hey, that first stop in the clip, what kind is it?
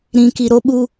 plain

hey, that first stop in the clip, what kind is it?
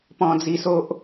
plain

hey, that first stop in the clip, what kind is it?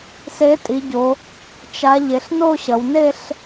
ejective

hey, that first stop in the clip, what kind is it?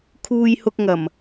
aspirated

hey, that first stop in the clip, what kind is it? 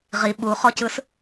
implosive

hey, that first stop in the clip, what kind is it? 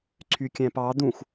click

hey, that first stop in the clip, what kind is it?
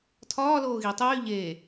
aspirated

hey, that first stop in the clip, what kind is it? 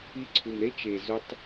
click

